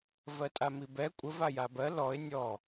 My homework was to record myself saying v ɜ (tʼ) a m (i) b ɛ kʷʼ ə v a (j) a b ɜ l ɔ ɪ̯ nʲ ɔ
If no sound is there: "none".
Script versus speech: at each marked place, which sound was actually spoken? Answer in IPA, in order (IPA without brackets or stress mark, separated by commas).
tʼ, i, j